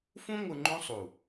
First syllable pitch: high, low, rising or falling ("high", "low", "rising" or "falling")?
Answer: high